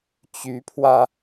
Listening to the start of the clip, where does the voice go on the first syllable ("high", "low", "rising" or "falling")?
rising